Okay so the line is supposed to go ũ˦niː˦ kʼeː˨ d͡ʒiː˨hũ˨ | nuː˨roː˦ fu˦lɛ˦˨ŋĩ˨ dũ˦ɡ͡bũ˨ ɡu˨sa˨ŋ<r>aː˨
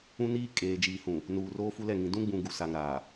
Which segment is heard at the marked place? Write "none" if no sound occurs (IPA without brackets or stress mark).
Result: ɾ